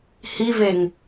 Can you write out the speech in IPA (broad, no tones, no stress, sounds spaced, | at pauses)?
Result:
h i v e ŋ